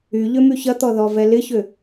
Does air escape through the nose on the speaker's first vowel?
no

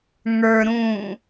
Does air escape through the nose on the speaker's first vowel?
no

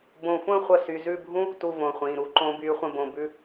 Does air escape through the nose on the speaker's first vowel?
yes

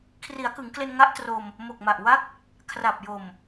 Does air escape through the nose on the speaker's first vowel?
no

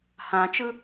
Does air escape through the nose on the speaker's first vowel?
yes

